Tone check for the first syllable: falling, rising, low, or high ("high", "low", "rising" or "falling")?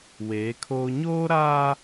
rising